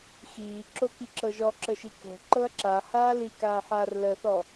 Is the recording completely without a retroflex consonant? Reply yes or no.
yes